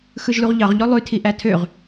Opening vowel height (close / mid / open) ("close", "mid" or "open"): close